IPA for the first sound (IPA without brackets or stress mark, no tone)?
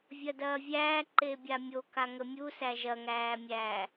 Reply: vʲ